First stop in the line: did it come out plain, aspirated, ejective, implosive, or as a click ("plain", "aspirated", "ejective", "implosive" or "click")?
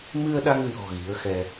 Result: implosive